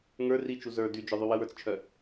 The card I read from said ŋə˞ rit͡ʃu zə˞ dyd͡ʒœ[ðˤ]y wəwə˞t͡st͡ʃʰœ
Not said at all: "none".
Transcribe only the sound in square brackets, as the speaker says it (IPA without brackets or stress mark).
ðˤ